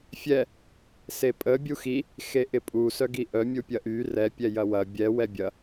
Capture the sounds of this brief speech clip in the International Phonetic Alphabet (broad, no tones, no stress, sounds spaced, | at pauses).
fʲ ɛ | s e pʼ ə bʲ u x i | x e ʔ ɪ pʼ u s œ ɡ i ʔ œ mʲ u pʲ ɐ ʔ y r ɛ pʲ ɛ j ɐ w ɐ bʲ ɛ w ɛ bʲ ɐ